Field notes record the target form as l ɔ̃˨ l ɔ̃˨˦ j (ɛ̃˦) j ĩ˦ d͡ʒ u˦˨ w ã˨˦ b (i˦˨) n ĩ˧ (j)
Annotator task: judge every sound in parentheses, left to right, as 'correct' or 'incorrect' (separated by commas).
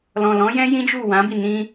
correct, correct, incorrect